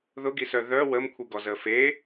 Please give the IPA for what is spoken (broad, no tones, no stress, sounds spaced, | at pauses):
ð ʊ ɡ i s œ ð œ w ə m kʷʰ i ɡ ɔ z əː f e